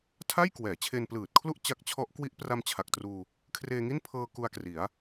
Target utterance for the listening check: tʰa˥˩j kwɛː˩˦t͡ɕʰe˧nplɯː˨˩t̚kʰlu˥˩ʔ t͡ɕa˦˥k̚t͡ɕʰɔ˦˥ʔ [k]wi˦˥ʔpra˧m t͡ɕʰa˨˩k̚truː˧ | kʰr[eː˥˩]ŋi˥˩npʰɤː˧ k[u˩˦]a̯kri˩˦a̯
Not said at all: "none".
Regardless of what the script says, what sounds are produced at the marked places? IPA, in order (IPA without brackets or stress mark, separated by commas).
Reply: k, eː˧, u˧